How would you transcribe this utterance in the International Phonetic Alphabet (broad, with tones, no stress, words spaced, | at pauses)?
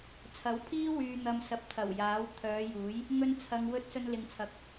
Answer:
t͡sʰɐ˨˥wpʰiː˥ wyː˨n̪ɐ˨m sɐ˨˥p̚t̪ʰɐ˨˩wjaː˨˥w t̪ʰœː˨˧juː˨˥j | ŋɵ˧nt͡sʰɐ˨ŋwɵ˧t̚ sɵ˧nlɪ˨ŋt͡sʰɐ˨˥k̚